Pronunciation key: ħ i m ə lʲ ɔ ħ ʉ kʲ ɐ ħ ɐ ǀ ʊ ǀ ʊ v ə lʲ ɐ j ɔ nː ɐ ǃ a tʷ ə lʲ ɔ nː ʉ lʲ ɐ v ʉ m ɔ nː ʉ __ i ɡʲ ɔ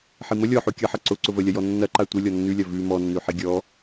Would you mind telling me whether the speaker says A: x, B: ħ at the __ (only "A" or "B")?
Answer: B